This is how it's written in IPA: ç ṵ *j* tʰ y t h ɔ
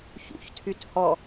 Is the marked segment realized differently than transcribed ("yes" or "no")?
yes